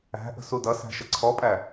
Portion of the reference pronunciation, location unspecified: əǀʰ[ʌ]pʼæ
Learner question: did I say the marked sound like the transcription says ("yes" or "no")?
no